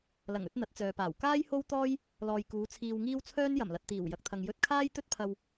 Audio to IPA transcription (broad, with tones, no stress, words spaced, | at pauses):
lɐ˨˩ŋɵ˧t̚ n̪ɐ˨˥t̚t͡sœː˨paː˨˩w kaː˥jho˥w t̪ɔː˥j | lɔː˨jkuː˨˧ t͡sʰiː˧wŋiː˥w t͡sʰœː˥njɐ˨˩mlɐ˨t̚t̪iː˨˩w jɐ˨k̚t̪ʰɐ˨ŋ jɵ˧t̚kʰaː˥jt̪ɵ˥t̚pʰɐ˧w